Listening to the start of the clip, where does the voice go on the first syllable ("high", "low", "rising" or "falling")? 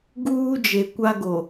high